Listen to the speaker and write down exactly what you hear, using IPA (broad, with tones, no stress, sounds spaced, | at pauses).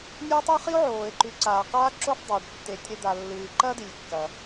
nʲ u˦ tˤ ɵ˥ χ i˥ o̯ ʕ oː˩ e̯ ǃ ʉ˨ ǀ aː˩ q aː˥ ǁ o˥ f dˤ ɵː˩ ɖ tː e˨ tʲ ɾ e˦ d̪ a˨ lː ɨː˨ ǃ ɐ˥ d i˩ lʲ kː ɐ˩